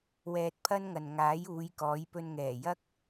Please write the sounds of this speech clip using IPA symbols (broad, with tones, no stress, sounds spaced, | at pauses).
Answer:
w ɛː˧ t̚ pʰ ɐ˥ n ŋ ɐ˨ n ŋ aː˨˥ j uː˨˧ j k ɔː˨˥ j p ɵ˧ n ŋ ɛː˨˩ j ɐ˥ k̚